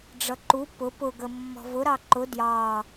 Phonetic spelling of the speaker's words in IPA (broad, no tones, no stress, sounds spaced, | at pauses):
ɖ͡ʐ ʌ ǃ u p ʊ p ʊ ɡ ə mː ɔ̤ v ʊ ɾ ɑ ǃ ʊ d j ɑ